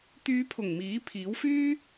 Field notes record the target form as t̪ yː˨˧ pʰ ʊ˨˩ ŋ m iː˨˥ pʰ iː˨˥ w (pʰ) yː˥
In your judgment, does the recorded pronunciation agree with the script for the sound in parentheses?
no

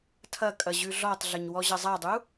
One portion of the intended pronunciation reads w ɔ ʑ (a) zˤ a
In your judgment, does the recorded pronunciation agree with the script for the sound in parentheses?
no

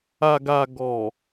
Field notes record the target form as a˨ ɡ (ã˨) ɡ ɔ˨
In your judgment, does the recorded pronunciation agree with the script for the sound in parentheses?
no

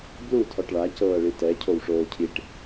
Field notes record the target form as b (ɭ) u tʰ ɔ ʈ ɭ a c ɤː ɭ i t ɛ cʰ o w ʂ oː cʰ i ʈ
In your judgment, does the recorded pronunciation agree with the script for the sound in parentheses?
no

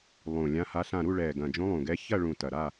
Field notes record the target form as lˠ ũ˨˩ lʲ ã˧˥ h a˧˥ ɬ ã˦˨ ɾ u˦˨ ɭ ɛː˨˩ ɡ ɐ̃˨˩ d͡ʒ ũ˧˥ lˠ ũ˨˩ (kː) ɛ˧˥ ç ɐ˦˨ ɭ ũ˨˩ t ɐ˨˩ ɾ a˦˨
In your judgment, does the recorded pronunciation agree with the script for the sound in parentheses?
no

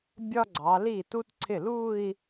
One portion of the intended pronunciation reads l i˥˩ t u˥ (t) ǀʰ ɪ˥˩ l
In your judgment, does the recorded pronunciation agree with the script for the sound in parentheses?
yes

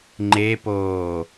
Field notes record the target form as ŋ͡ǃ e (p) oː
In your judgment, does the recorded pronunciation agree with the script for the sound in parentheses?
yes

